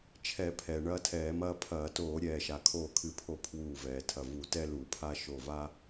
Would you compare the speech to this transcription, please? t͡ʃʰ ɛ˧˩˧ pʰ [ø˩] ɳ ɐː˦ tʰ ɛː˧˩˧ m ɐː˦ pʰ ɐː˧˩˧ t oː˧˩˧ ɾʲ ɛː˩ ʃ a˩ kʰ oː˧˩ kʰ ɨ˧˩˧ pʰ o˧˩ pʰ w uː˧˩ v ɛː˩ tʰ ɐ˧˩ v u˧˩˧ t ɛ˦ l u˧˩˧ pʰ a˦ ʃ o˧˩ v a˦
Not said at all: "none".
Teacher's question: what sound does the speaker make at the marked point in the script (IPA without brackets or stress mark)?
ɛ˩